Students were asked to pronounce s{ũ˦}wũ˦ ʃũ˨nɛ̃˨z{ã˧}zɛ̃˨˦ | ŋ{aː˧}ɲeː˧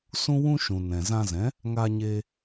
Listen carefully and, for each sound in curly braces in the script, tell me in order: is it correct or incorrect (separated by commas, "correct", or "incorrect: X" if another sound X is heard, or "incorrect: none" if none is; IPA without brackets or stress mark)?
correct, correct, correct